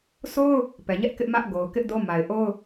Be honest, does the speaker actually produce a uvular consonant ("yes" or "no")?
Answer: no